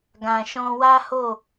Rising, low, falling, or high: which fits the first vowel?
low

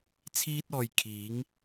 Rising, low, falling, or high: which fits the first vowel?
high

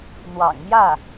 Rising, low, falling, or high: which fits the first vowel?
low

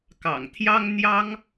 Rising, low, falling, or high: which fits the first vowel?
low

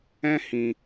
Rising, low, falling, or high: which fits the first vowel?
high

